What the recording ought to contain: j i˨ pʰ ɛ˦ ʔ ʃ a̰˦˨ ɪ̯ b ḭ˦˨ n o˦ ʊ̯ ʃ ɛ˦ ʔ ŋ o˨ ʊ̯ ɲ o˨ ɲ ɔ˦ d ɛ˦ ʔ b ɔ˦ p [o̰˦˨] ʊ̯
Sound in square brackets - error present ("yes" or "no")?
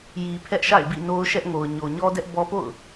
no